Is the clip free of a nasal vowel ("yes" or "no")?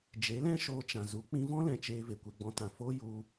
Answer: no